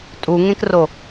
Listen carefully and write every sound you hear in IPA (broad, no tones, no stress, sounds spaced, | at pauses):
tʼ u ŋ ẽ k r o